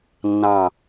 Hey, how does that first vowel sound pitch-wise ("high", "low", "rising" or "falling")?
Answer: falling